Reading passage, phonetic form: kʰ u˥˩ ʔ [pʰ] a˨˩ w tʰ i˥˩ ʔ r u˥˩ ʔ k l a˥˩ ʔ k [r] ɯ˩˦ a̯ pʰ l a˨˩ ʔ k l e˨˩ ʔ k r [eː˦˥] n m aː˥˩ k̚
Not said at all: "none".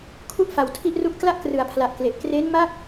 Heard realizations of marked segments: f, r, eː˦˥

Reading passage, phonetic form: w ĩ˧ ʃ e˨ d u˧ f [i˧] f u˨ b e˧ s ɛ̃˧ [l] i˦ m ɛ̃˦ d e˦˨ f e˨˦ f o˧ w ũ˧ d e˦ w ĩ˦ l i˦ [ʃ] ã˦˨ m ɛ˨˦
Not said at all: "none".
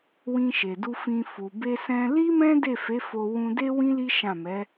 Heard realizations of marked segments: ĩ˧, l, ʃ

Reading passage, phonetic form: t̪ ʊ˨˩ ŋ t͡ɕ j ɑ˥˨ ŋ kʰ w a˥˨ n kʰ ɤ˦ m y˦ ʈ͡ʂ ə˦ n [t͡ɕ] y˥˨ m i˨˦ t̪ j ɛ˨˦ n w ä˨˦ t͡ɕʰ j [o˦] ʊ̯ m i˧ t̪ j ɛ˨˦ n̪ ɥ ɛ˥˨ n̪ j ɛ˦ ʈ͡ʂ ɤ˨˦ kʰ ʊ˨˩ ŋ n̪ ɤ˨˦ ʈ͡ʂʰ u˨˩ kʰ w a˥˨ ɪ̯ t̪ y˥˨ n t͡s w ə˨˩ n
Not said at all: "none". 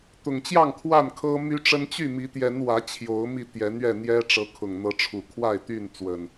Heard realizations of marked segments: t͡ɕ, o˨˦

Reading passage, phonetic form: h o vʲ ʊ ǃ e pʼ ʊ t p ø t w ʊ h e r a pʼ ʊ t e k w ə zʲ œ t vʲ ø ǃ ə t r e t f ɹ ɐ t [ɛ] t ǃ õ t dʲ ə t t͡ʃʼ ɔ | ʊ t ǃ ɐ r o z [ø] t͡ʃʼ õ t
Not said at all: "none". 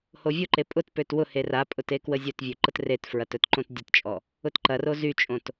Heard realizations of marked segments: œ, y

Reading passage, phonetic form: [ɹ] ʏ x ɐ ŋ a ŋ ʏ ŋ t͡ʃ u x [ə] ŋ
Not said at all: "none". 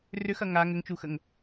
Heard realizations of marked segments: r, ə

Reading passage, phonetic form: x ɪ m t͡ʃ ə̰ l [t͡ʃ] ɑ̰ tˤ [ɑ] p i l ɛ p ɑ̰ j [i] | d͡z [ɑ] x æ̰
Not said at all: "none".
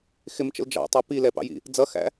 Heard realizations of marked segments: d͡ʒ, ɑ, ḭ, ʌ

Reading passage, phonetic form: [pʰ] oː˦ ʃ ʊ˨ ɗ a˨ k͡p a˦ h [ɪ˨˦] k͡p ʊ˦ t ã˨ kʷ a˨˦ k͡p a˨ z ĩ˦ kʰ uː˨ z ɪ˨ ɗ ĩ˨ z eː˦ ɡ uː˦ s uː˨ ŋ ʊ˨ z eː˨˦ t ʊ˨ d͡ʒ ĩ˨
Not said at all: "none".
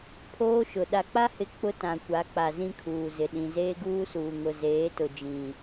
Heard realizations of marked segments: pʰ, ɪ˨˦

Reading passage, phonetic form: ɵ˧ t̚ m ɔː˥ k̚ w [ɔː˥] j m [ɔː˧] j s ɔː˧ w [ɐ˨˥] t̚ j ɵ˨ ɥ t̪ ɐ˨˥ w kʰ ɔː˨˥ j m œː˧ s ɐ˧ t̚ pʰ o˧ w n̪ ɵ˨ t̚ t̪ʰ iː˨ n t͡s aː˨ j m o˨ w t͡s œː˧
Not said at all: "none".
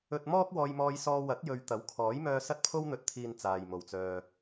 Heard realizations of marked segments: ɔː˧, ɔː˧, ɐ˨˥

